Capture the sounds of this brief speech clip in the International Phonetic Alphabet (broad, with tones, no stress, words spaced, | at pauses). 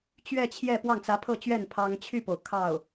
t͡ɕɥɛ˥˧t͡ɕʰjɛ˥˧ pwɑ˥˩ŋt͡sä˧˥pʰɤ˥˧t͡ɕɥɛ˥˩n pʰɑ˥ŋ t͡ɕʰy˥˩po˩ʊ̯ kʰɑ˥˩ʊ̯